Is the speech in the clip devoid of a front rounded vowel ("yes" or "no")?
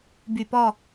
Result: no